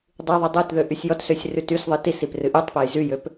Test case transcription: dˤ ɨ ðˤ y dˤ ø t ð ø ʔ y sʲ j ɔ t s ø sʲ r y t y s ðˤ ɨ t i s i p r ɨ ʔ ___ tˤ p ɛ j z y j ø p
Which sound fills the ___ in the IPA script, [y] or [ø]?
y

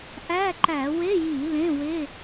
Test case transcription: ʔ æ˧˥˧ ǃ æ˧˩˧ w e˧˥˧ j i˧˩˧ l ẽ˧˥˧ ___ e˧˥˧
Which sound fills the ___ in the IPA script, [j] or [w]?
w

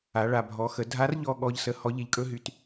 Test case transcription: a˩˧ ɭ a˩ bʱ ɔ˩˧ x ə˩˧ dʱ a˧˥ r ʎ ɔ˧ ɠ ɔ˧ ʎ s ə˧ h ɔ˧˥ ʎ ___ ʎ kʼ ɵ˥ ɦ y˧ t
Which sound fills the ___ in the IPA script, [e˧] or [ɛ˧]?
e˧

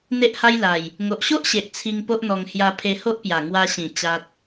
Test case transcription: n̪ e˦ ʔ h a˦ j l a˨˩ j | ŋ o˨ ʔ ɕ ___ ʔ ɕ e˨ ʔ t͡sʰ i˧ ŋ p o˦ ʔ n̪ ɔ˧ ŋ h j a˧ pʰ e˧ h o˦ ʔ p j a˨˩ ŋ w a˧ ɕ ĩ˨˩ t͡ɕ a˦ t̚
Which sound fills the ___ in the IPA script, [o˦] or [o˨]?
o˦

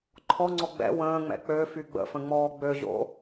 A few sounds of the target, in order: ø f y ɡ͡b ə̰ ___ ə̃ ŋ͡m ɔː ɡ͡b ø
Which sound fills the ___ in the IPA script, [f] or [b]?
f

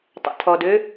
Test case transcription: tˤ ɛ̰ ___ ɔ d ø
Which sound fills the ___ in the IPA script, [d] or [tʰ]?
tʰ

